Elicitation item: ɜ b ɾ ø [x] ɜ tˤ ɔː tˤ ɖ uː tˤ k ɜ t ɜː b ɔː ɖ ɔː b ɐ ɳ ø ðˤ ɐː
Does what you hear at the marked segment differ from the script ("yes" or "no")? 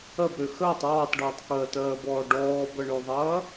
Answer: no